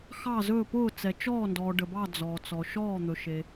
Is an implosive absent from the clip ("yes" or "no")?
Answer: yes